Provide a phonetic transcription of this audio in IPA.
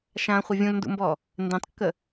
ʃ ã χʷ ə vʲ ũ l n d ṵ m b ɔ | n d ẽ tˤ kː ə

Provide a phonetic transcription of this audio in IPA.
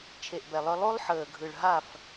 t͡ʃʰ e˨ ʔ b ɛ˨ lˠ œ˦ lˠ o˦ lˠ ħ əː˨ ɡʱ ɯ˨ ɭ ɦ a˦˨ f

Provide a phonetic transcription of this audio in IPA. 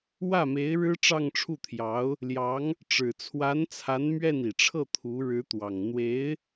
w ä˥˩ m e˧˥ ɪ̯ ɻ ɻ̩˥ ʈ͡ʂ ɑ˥˧ ŋ ʈ͡ʂʰ u˥˩ t̪ʰ j ɑ˧˥ ʊ̯ | l j ɑ˧˥ ŋ | ʈ͡ʂ ɻ̩˨˩ t͡sʰ w a˧˥ n t͡sʰ a˧˥ n m ɥ ɛ˥˩ n i˨˩ ʈ͡ʂʰ ɤ˥˩ t̪ʰ u˧˥ ɻ ɻ̩˧˥ t̪ w ɑ˨˩ ŋ n̪ w e˧˥ ɪ̯

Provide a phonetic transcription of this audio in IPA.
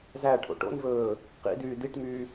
z æ ʈʰ o̰ ʈ o̰ n v ɵː | q ḭ d yː d i ʈ m yː

